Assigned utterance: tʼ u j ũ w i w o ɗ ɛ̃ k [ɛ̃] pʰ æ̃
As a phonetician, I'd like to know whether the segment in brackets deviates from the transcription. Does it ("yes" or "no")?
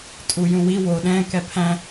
yes